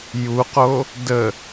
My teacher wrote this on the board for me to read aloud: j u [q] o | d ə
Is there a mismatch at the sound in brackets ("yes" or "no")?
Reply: no